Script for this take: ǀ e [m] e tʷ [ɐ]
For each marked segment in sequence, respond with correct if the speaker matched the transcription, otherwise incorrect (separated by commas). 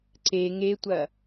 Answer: incorrect, correct